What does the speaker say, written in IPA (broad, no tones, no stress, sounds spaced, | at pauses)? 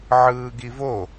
ʕ ɯː ɡ i v o